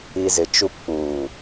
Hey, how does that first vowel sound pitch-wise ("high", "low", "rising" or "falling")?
low